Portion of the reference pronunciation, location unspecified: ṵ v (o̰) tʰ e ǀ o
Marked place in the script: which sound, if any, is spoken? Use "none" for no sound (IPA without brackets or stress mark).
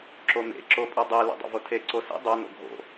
o